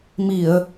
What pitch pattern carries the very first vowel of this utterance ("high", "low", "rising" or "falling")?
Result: low